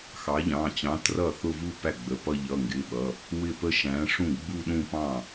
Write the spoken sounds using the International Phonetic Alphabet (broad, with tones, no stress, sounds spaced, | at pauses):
x ɑ˨˥ ʎ ɑ̃˩˧˩ t͡ɕ ɑ̃˨˥ t r ʌ˥˩ θ ʊ˥˧ v u˥˧ p æ˥˩ ɡ͡b ə˩˧˩ p ʌ˥˧ ʎ ʌ˩˧˩ ŋ ɡ ɪ˩˧˩ ɓ ʌ˩˧˩ | w ɪ˥˩ p ə˥˧ ʃ æ̃˨˥ ʂ ũ˥˩ ɡ͡b u˥˧ ɗ ũ˥˧ p ɑ̃˥˩